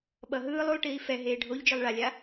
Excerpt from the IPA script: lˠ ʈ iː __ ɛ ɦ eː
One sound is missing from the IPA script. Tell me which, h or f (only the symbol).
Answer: f